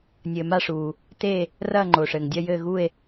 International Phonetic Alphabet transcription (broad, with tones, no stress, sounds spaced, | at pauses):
nʲ ɘː˩ m a˥˨ ʂ uː˩ | t e˥˨ | r ɐː˥˨ ŋ͡ǃ oː˩ ʂ ɘː˩ ŋ dʲ ɐ˥˨ j ɘː˥˨ ɣ u˥˨ e̯